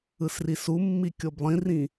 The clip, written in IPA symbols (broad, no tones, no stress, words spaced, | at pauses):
ɯsrisumːi kʲoblˠĩrĩ